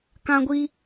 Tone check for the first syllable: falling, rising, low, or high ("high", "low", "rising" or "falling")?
high